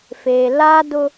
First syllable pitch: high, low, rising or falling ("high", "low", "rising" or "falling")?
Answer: low